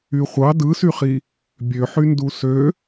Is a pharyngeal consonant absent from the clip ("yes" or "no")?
no